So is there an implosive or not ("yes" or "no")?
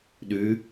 yes